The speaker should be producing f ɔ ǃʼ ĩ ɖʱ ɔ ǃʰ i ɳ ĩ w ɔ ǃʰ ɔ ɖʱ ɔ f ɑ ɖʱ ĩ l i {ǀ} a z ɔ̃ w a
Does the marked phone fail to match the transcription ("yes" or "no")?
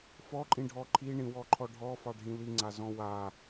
yes